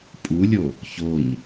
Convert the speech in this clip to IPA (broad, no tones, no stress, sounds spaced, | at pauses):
pʼ u lʲ o | ç o ɲ